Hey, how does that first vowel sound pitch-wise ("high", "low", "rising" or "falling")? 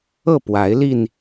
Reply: falling